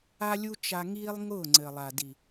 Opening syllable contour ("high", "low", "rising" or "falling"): high